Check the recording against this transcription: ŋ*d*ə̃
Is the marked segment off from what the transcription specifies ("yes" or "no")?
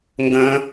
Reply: yes